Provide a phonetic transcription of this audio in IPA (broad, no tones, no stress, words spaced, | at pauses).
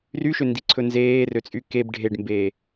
ryʃøndiǀʰɵ nzeːrøt͡sʼy keb ɖʱeɖmbe